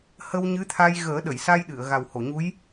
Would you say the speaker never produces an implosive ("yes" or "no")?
no